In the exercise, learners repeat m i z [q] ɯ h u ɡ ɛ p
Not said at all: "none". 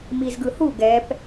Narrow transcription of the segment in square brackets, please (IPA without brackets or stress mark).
ɡ